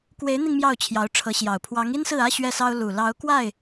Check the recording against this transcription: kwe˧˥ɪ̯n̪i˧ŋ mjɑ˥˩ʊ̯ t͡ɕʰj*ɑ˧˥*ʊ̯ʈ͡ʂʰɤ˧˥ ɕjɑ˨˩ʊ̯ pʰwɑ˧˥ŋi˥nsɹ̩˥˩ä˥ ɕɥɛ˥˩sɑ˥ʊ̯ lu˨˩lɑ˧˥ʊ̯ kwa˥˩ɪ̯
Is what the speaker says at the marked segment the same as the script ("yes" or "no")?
yes